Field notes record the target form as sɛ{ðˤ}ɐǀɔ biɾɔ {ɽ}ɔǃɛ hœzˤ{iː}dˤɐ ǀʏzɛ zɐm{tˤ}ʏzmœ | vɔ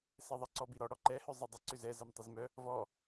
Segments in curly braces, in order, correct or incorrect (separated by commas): correct, correct, incorrect, correct